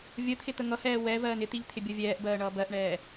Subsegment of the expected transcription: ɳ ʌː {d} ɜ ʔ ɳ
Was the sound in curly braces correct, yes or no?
no